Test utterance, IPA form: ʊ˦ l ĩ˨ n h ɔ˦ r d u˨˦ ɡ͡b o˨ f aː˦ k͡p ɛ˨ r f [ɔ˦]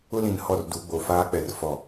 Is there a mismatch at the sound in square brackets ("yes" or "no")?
yes